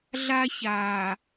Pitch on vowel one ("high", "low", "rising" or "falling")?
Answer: high